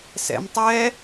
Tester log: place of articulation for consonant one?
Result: alveolar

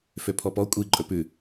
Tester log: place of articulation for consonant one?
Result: labial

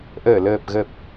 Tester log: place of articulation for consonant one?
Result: glottal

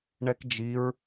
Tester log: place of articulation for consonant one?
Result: retroflex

